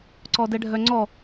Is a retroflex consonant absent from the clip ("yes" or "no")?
no